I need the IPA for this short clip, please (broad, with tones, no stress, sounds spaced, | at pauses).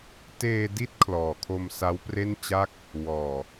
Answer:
t eː˧ d i˦˥ t̚ kʰ l ɔː˨˩ kʰ o˧ m s a˦˥ w p r e˥˩ n t͡ɕ a˥˩ k̚ | w ɔː˨˩